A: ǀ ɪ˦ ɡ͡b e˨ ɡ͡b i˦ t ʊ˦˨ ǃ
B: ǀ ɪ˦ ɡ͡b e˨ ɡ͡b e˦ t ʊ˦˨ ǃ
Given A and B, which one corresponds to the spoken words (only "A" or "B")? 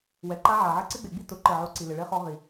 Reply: A